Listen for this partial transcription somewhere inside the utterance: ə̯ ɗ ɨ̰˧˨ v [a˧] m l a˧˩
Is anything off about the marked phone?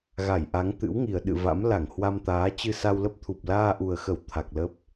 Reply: yes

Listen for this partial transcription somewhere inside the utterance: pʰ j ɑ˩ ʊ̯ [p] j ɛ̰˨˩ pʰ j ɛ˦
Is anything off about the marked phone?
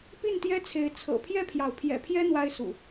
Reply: yes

